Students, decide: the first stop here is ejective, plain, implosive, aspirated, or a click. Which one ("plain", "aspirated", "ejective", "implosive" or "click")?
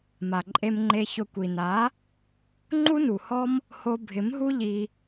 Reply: click